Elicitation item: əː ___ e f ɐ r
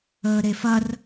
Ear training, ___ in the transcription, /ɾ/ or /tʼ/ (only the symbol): ɾ